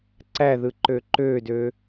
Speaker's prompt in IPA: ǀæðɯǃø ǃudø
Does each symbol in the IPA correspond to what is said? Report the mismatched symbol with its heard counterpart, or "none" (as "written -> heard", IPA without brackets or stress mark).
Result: u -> ø